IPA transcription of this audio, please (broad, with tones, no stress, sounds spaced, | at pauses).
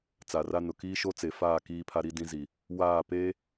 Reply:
t͡s a˨ r a˦ n ʊ˨ k iː˦ ʃ o˦ t͡s e˨ f aː˦˨ k iː˦ pʰ a˦ ɾ i˦ d ĩ˦ z i˨ | w aː˦˨ p eː˦